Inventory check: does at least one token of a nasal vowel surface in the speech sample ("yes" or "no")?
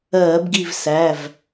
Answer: no